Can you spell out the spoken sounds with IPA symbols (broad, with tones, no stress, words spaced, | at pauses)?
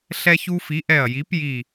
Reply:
ɬɛ˦çu˦fi˨˥ʔɛ˧˩ɐ̯ ji˨˥pji˧˩